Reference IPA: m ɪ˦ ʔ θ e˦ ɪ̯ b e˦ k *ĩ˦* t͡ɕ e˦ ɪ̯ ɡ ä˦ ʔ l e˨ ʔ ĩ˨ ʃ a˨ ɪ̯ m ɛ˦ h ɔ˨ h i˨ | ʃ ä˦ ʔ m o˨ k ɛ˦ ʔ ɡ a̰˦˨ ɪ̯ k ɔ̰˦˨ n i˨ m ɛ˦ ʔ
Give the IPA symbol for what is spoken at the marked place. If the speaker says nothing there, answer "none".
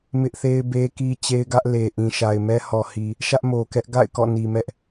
i˦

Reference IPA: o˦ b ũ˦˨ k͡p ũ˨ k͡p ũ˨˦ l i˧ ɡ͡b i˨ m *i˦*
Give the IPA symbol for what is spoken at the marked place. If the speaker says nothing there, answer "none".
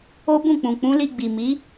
i˨˦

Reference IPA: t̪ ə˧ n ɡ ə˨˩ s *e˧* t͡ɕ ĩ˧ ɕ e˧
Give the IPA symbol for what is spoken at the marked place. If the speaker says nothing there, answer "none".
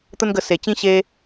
e˨˩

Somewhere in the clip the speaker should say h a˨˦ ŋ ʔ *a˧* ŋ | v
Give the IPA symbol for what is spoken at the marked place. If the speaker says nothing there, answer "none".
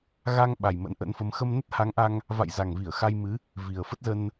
a˧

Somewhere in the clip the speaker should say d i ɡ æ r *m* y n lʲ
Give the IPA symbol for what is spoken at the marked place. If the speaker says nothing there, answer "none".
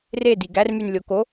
m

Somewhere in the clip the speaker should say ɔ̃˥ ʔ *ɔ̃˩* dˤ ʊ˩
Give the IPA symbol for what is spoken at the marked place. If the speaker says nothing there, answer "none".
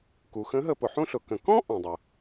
ɔ̃˩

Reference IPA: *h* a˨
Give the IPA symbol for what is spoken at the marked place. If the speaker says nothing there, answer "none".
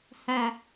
h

